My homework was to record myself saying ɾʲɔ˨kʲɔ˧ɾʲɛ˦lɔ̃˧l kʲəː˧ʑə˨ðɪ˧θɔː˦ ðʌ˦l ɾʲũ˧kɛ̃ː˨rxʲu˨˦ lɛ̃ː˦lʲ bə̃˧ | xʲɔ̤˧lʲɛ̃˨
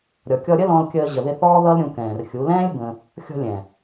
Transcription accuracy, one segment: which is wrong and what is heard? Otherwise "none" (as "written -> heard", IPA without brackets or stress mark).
ɛ˦ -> ə˦